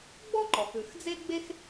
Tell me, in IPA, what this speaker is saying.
ɡ͡bɔ˥ǃɔ˩x ʉ˩xd͡ze˥ɡ͡be˥x

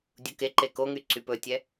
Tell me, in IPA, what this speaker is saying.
dʲukeǃe koŋy ǀypɵtʲɛ

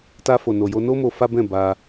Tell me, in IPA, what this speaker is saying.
ta˧fo˨no˨jo˧ no˦mo˧ fa˦bɛ̃˦˨ ba˧

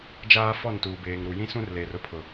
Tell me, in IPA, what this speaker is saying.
d͡ʒaː˦ fɔ˦˨ntuː˨ beː˨ŋɾu˨ jĩ˦sũ˦rleː˨r ʊ˦pʰʊ˨

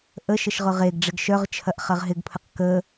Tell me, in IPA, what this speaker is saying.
ʔəʃəʃ ʁʊʁeɡɖ͡ʐɪɡ ʃœʁt͡ʃʰɐʔ χɐʁɦɪɡpʰəq kə

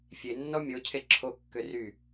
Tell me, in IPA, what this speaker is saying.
fʲenːɔ mʲocʰe ǁʰokːø ry

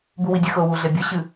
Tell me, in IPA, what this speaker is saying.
buwidʲɨxɤ wuɮebʲɤ ɕɨ

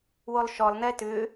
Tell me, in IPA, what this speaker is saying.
wolˠʃɔlˠnɛ tʏ

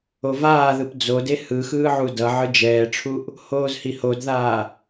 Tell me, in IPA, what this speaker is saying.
ovaːðɯp d͡zode hɯxɯːʕu dʌ ʕɯd͡ʒɛːʈ͡ʂʰuʔ | hoːzhihodðaː

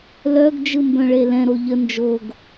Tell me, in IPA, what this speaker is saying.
lœɡ d͡ʒɯmbœ̃ɭelɛ̃ ɾoʎə nd͡ʒoɡ

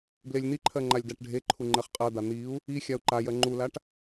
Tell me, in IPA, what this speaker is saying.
blelʲn̪iǃʰɜ ŋ͡ǃalʲdaʈɖʱeǃʰu ŋ͡ǃɜχqʼɜd̪a n̪iu̯ | i xʲau̯ǃajɜ ŋ͡ǃulaʈ

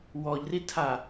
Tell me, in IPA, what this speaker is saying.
wɔʎritʰa

